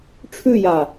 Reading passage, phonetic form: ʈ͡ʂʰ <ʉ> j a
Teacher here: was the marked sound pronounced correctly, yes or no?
yes